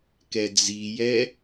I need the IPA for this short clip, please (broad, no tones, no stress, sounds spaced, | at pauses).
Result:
k ɛ d͡z i j ɛ